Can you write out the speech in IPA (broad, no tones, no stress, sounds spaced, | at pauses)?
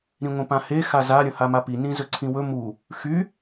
ɾ ĩ ŋʷ ẽ p ã h e x a z a ɾʲ ə̃ h a m a p i n ĩ z ɵ ǀʰ ĩ w ɵ m u | x y